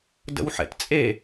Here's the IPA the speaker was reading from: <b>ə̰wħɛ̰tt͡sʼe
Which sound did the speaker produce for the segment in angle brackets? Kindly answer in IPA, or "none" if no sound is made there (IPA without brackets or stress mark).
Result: d